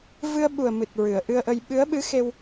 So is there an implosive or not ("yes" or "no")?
yes